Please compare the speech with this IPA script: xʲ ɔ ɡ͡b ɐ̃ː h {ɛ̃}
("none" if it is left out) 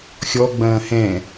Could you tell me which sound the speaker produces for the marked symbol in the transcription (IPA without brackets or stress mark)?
ɛ̃